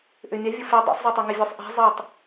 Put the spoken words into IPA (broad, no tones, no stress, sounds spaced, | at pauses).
ʔ ø mʲ a vʲ ə f e dˤ ḛ sˤ zˤ o tˤ ɛ ŋ ɪ vʲ o sˤ ʔ ɛ̤ zˤ e tˤ